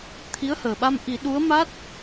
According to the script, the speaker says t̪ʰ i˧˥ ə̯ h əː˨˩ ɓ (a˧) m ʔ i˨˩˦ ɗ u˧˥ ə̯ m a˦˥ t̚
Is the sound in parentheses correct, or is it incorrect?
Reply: correct